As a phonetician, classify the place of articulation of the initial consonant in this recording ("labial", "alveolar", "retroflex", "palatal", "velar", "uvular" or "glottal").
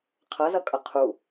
uvular